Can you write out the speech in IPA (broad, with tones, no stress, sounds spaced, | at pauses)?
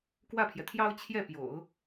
k w ä˥˩ pʰ j ɛ˩ t̪ʰ j ɑ˥ ʊ̯ t͡ɕʰ j ɛ˥˩ p j o̰˨˩˦ ʊ̯